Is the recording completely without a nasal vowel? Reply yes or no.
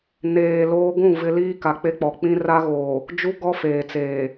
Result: no